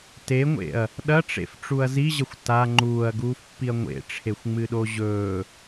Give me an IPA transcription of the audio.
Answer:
t e ŋʷ ḛ ɐ̯ | ɗ ɐ ʈ͡ʂ ḛ f ʈ͡ʂ u ɐ̯ z i ʑ ɐ xʷ t a ŋ͡ǃ uː ɐ̯ ɡ uː f pː i ɐ̯ ŋʷ ḛ ʈ͡ʂʰ e xʷ ŋ͡m ɨ ɗ o ʑ ɵː

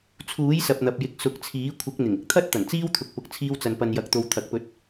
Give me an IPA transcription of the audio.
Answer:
t͡sʰ uː˨˥ j s ɐ˨ p̚ n̪ ɐ˨ p̚ j ɪ˧ k̚ s ʊ˨˥ k̚ t͡sʰ iː˨˥ kʷʰ ɪ˨˥ k̚ n̪ ɪ˨˩ ŋ ɪ˥ k̚ t̪ʰ ɐ˥ t̚ t̪ ɐ˨˩ n t͡s iː˥ w t̪ʰ ʊ˨ k̚ p ʊ˨ k̚ t͡sʰ iː˧ w t͡s ɐ˨ n p ɐ˨ n j ɐ˨ k̚ t̪ o˨ w t̪ʰ ɐ˨˥ k̚ p ɵ˧ t̚

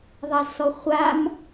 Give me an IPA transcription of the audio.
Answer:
ðˤ a z s ɔ χʷ a m

